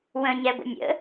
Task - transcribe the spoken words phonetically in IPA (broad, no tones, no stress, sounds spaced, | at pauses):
w ə̃ ɲ ɛ ɡʷ ə̰ nʲ ə̰